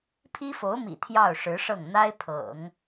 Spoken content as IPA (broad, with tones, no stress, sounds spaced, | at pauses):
pʰ i˥ f o˧˥ ʊ̯ m ḭ˨˩ t̪ʰ j ɑ˥˩ ʊ̯ ʂ ɻ̩˧˥ ʂ ɤ˥˩ ŋ n̪ a˥ ɪ̯ pʰ ɤ̰˨˩˦ ŋ